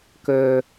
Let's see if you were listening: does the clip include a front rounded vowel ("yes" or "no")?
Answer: yes